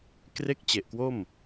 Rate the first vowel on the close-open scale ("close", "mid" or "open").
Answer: mid